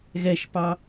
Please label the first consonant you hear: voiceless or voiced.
voiced